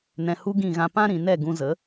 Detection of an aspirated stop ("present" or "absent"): absent